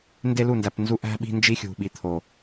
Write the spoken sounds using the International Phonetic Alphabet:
nde˦lu˦˨ndæ˨pnzu˦ ʔæ̤˦ ɓi̤˦nd͡ʒi˦xʲṳ˨ ɓi˨t̪ʰo˨

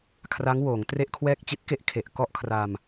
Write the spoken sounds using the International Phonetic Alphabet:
kʰra˦˥ŋwoː˩˦ŋtre˥˩ʔkʰwɛː˥˩k̚ t͡ɕi˦˥t̚ke˦˥ʔ kʰe˨˩ʔkɔ˥˩ʔkʰra˧m

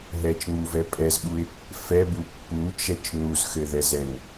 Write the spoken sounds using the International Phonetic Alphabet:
ɦɛt͡ʃŋ͡muvɛ pʼɛzɓuɪ̯ | fɛbu pːut͡ʃɛt͡ʃ nuzxɘðɛzɛn

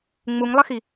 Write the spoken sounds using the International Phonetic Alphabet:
ŋ͡muŋlˠəxi

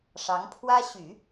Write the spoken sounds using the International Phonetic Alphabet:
ʂɑ˧˥ŋpʰwä˥ ɕy˨˩˦

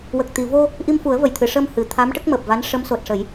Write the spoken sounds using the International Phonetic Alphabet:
wə˨˩k̚t̪i˨˩˨vo˧ | ʔi˧mfu˨˩˦ə̯və˨˩˨jt̪ʰɨ˨˩˨ ʂəː˧m hɨ˨˩t̪ʰa˧˥m ʈə˦˥k̚məː˨˩p̚va˧˥n ʂə˧˥mso˨˩t̚ʂə˨˩˦j

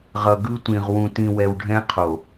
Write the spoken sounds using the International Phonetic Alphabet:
ʁʌ˨ ɡɯ˦tʷĩ˨ʁ wũ˨tĩ˨wɛ˨w ɖʱɛ̃˦qʰo˨

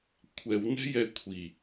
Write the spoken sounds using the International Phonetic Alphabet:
kʷʰɛw nɛ̤jɛkʷʰi

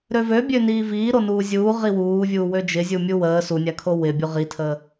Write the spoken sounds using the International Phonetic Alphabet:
ɾøvø bʲøniːviː ɾonuːzʲuːʁi wuːvʲuː wød͡ʒɪzʲumʲu wəː sunʲakʰo wɪbʲu ʁitʰə

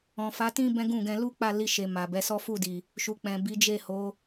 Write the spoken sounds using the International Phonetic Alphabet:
ɔ̃˨ fa˨˦tĩ˦ bɛ̃˦ɡũ˦˨ɡɛ̃˧ lu˦ k͡pa˦˨li˧ʃe˨ ma˨bɛ˨˦sɔ˦ fu˦˨di˨ | ʃu˨k͡pɛ̃˨ bi˨˦d͡ʒe˦˨ho˨˦

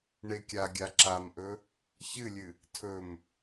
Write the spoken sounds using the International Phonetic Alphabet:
ɳekʲaɡʲa ǁamʔɵ | çɨlʲɨ | tʰɵm

